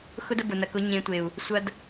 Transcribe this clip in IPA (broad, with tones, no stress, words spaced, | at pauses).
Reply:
xʊ˦də˧ bʊ˨nɐ˨kʊ˨˦ ɲẽ˨˦tʷe˨u̯ | sʷɐ˦d